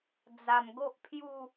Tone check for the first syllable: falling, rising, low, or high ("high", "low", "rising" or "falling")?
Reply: low